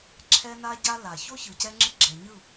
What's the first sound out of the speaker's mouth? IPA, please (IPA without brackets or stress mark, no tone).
ǁʰ